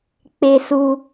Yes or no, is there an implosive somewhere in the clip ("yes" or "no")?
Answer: no